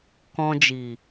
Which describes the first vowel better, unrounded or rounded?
rounded